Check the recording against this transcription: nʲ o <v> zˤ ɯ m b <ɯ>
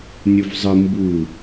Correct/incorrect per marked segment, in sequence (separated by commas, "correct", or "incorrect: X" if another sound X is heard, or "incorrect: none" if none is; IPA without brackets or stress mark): correct, incorrect: u